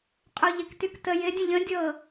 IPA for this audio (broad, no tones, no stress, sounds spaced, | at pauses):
qʼ o ʎ ɪ k t y k t ə j ɪ dʲ ə̃ ʎ ə̃ dʲ ɤ